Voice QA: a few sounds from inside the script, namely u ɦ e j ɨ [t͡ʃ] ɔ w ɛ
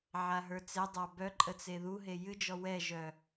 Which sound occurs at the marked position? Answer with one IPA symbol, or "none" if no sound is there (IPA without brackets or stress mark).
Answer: d͡ʒ